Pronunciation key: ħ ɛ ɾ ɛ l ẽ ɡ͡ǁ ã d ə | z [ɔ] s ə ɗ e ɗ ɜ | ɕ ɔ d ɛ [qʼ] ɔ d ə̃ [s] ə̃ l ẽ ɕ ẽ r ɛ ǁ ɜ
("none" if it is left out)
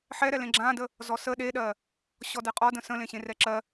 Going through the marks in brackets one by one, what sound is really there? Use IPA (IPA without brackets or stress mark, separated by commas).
ɔ, qʼ, s